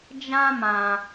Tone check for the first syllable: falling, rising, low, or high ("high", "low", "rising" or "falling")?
high